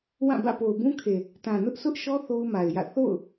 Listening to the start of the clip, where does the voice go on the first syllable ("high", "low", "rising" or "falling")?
falling